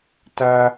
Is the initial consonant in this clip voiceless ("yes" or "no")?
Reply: yes